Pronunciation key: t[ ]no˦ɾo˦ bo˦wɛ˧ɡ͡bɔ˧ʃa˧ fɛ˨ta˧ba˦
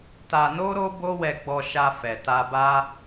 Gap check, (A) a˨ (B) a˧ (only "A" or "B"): B